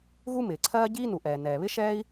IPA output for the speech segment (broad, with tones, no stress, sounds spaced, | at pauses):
ɣ u˥ m ɪː˩ ǀʰ ɜː˥ ɟ iː˥ n u˩ ʔ ɛː˩ n ɛː˩ β ɪ˥ ʃ ɛː˥ i̯